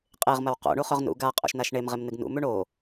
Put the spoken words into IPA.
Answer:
qʼ e ʁ m ɐ w q o̰ ɳ u χ ɵ ʁ n ṵ ɡ a qʼ o̰ ʃ n a ʃ ɳ e m ʁ e m n ɨ ɡ n ṵ m ʉ ɳ o

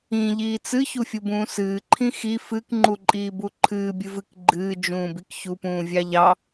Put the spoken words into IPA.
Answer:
ĩ ʎ iː t͡s ɨ ç u fʲ u b ũː s ɨː ǃʰ ĩ x i f ɨ k ŋ͡ǃ u ǃʼ iː b u ǃʰ ɨː bʲ ɨ v ɨ k ɡ͡ǃ ɨː d͡ʒ ũː b i k ç u p ũː vʲ ɑ ʎ ɑ

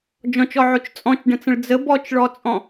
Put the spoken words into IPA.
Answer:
d͡ʒ ɔ̃ t͡ʃ ɔ ʕ o t͡ʃ t͡sʼ ɔ̃ t͡ʃ ɖ ə̃ t͡s ə̃ ɭ d͡z ə b ɔ t͡ʃ ɭ ɔ t͡sʼ ɔ̃

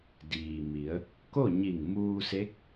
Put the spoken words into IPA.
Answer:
d iː˩ m i˩˧ ə̯ | k o˥˨ ɲ i˧˩ ŋ m uː˧ s e˧˥ k̚

